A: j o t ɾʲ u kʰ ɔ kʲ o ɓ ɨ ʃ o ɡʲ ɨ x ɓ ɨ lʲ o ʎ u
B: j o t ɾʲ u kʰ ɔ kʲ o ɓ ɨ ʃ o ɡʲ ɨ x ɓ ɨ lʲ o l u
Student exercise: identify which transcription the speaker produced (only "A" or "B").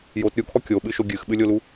B